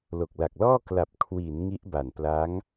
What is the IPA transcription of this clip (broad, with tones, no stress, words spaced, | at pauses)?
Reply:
lo˨˩k̚la˨˩k̚lɔː˥˩ kla˨˩p̚kʰwi˩˦n ŋi˦˥ʔba˨˩npla˦˥ŋ